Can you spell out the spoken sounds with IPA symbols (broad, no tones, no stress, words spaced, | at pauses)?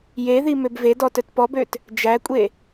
jeði møbvedɔ tœtpɔbøt | d͡ʒækʷʼe